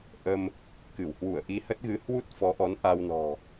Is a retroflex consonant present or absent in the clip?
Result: absent